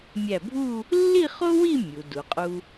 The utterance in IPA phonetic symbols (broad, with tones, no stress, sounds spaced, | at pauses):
mʲ æ˧˩ bʱ u˥˧ | lː i˥˧ χ o˥ w i˥˧ mʲ u˩˧ d u˩˧ qʼ u˧